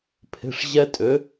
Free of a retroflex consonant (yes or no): no